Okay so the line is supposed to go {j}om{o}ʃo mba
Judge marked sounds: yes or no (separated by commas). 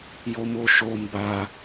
yes, yes